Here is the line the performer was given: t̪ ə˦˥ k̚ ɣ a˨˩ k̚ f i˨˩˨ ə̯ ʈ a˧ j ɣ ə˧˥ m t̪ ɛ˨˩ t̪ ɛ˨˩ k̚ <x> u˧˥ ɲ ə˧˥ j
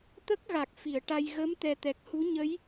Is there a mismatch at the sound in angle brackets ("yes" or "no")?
yes